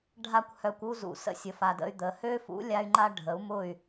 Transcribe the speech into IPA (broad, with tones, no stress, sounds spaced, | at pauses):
ɖʱ a˦ kʷ h œ˧ kʷ u˦ z ṵ˨ s ə̰˧ sʲ ə˨ f a˨ d ə̰˧ y̯ d̪ ə˨ h ø˦ f ṵ˨˦ lʲ a˦ y̯ ŋ͡ǃ a˦ ɖʱ ə˨˦ u̯ m ʊ˦˨ y̯